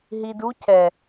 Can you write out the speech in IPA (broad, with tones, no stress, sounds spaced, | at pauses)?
ɦ i˨ d u˦ cʰ ɛ˨